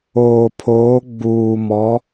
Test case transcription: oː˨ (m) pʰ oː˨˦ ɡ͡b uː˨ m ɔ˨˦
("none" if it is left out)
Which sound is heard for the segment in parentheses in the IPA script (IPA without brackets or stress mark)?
none